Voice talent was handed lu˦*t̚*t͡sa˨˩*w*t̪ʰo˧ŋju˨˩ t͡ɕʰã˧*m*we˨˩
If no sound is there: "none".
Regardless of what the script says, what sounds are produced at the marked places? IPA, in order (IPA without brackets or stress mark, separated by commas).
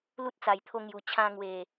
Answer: t̚, j, ŋ